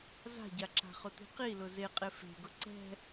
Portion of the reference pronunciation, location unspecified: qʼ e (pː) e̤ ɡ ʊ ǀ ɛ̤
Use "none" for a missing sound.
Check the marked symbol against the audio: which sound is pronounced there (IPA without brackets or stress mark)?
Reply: f